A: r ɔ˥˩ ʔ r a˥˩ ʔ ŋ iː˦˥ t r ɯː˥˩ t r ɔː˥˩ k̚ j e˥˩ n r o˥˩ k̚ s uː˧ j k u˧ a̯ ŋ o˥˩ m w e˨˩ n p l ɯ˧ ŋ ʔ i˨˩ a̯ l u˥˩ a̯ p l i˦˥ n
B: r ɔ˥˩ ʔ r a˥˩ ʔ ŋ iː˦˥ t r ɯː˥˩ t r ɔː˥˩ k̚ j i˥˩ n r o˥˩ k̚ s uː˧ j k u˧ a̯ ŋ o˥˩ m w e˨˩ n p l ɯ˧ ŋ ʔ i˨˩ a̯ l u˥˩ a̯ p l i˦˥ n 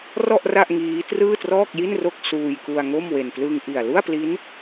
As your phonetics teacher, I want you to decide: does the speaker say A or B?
B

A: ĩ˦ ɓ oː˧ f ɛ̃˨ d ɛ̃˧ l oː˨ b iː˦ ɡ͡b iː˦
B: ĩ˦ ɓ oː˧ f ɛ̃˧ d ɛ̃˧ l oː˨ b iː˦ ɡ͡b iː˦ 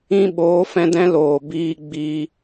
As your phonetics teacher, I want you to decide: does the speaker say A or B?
B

